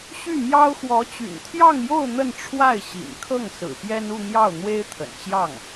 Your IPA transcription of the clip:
ɕy˥˩mjɑ˥ʊ̯ xwɔ˧˥t͡ɕy̰˨˩nt̪ʰjɑ˥˧ŋjo˥˧ʊ̯ n̪ə˥˧nʈ͡ʂʰwa˥˩ɪ̯ɕḭ˨˩nkʰɤ˥˩ŋ sɹ̩˨˩pjɛ˥n u˥˧n̪jɑ˥˩ʊ̯ n̪we˥ɪ̯t̪ʰə̰˨˩nt͡ɕjɑ˥˩ŋ

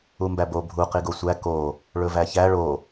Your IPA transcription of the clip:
umbæbo bʱu qiɡosʷæ ko | ɭɵvæçæ ɭo

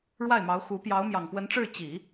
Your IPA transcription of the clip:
ɻwa˥˩ɪ̯mɑ˧˥ʊ̯xu˧˥ pjɑ˧˥ʊ̯mjɑ˨˩ŋpwə˧˥nʈ͡ʂɻ̩˥˩ t͡ɕi˨˩˦

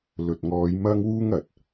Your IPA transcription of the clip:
lɵ˨t̚ŋɔː˨˧j mɐ˥ŋwuː˥ŋ ɐ˨t̚

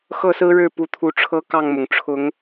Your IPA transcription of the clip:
xɤ˥˨sɹ̩˦ɻɻ̩˥˨ pu˨˦t̪ʰu˨˦ʈ͡ʂʰɤ˦ kɑ˥˨ŋmʊ˩ŋ ʈ͡ʂʰʊ˨˦ŋ

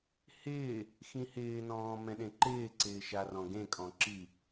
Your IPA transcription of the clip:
hɪː | xĩhɪːnɔ̃ː mɛ̃ɗẽǃɪːǀɪː ʃarɔ̃ɡẽkʼɔ̃ ǁi

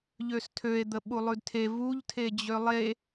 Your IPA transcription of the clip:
ʎøstʰøe̯d̪əɓu lˠʉdtʰe vuʎtʰe d͡ʑølˠe

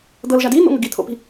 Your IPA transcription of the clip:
d̪ɤlʒa din̪o̰ŋəɡ it̪ʰo̰pi̤

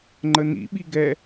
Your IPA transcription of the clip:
ŋ͡ǃənḭ ɓiɡɛ

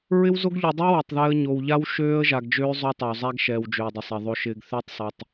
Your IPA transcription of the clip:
ɹɪ˦wzo˦ɡʎu˨dˤu˦ wɛ˨tˤðɛ˦ə̯ ɲo˨wʎa˦w ʃøː˦ə̯ʒa˨ɡd͡ʒøː˦ zˤo˦tˤa˨wzˤæ˦ɡʃɛː˨w d͡ʒøː˨dˤɪ˨sˤɛ˨ ðˤo˨ʃɪː˨ɡ θø˦tˤsˤɛ˨tˤ

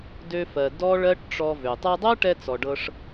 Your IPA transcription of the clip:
dø˧fɜ˨ dɔ˦ɭɜ˦ʈʈ͡ʂɔ˧vø˨ tˤɤ˧dˤɤ˦ʈɛ˧ t͡sɔ˨ɖɤ˧ʂ

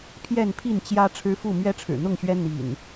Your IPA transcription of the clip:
pʰjɛ˥˨npʰi˥˨nt͡ɕjä˦ ʈ͡ʂʰɻ̩˦fu˥˨ mɥɛ˦ʈ͡ʂʰɻ̩˨˩n̪ʊ˥˨ŋɕɥɛ˦ n̪ḭ˨˩n

